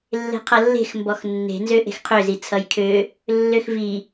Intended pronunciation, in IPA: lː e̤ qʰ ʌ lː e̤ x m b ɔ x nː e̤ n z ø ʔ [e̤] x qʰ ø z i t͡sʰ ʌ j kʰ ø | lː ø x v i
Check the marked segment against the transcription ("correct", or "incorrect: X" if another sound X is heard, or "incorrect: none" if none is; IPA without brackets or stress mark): correct